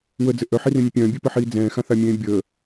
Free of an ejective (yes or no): yes